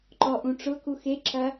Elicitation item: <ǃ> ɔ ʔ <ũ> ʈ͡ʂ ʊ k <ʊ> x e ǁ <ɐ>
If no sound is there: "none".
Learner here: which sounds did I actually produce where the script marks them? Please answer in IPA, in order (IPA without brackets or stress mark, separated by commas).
ǃ, ũ, u, ɐ